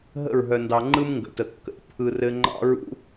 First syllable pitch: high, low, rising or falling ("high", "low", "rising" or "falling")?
falling